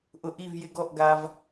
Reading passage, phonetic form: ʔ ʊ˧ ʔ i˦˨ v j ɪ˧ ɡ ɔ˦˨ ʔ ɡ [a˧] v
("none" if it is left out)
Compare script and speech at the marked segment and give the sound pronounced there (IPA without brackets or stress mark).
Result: a˧